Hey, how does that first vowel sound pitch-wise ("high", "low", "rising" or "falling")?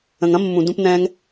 low